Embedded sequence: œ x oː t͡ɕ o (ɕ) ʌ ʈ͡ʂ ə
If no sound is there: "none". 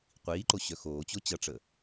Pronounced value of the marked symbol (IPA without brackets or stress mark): t͡ɕ